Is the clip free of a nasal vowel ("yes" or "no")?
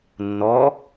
yes